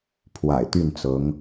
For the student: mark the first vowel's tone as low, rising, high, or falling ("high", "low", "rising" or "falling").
low